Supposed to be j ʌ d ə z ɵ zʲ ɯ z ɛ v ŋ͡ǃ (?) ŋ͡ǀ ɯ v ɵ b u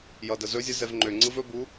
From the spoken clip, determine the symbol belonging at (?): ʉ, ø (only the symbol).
ø